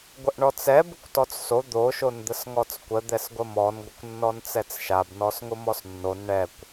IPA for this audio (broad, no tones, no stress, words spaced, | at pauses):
ɡʷəʔɳɔt͡sɛ bʊkʷtɔt͡sso d̪o ʃond̪əsŋɔt͡skʷə d̪ɛsɡʷəmɔn ɡʷəkʷnːɔnt͡sɛt͡sʃab nɔsŋʊmɔsnːon ɳɛkʷ